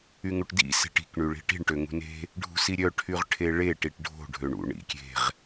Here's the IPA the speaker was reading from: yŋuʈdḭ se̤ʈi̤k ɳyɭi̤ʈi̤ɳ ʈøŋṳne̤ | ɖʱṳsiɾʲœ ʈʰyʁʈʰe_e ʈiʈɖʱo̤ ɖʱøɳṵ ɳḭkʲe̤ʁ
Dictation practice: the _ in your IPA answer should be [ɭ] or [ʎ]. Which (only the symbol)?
ɭ